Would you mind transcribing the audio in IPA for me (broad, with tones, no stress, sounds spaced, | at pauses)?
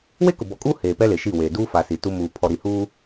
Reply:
w e˦ k ʊ˨ b ɔ˨ kʼ uː˦ h eː˨ p ɛ˦ l e˨ ʃ i˦˨ w eː˨ d uː˦ f a˨ s i˨ t u˦ m uː˨ pʰ ɔ˨ ɾ i˨ h uː˦